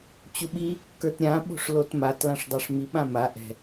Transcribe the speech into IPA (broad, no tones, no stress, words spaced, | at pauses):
t͡ɕuɓi | kə˞tɾʲã ɓo̤ʂlotmat lãʂdˤaʂmi ɓãma ʔɛ̤